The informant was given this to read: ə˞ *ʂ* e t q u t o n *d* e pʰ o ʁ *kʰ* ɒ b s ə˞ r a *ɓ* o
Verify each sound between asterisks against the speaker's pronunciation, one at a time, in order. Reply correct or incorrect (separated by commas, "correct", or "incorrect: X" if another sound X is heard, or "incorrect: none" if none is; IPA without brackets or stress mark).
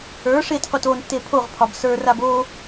correct, incorrect: tː, incorrect: pʰ, incorrect: b